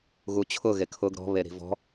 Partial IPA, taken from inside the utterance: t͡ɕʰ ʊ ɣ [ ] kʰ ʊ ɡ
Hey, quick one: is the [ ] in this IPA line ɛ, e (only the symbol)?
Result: e